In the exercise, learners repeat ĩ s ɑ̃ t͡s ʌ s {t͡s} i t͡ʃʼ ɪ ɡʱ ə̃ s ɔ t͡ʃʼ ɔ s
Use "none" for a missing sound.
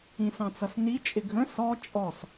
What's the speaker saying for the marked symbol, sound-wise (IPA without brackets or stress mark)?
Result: n